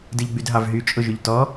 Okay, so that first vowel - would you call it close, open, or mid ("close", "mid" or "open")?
close